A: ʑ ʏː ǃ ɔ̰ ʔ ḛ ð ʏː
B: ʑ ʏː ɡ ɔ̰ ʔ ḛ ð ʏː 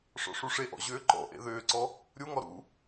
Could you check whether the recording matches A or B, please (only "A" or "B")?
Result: A